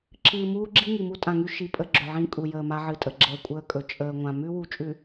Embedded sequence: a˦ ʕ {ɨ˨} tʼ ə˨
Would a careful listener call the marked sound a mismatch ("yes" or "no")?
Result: no